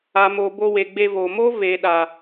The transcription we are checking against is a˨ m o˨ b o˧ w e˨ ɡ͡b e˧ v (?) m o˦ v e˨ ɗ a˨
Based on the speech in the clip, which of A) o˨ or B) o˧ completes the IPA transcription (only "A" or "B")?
A